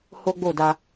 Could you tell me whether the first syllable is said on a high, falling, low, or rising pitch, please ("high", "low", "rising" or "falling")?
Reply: high